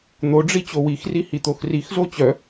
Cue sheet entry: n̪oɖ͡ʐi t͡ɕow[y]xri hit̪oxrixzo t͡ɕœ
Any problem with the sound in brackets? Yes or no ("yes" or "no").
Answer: yes